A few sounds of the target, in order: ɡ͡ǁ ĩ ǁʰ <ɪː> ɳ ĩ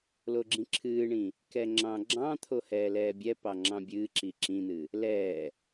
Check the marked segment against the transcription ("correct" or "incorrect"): incorrect